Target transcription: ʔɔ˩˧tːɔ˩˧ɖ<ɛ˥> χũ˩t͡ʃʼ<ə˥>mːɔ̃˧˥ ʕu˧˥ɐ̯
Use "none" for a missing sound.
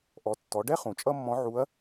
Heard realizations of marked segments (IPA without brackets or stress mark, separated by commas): ɛ˥, ʌ˥